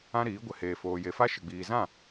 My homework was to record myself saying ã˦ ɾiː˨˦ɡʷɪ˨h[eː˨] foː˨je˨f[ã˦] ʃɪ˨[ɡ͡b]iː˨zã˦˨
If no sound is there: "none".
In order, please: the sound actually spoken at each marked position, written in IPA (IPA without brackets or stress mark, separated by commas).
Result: eː˨, a˦, ɡ͡b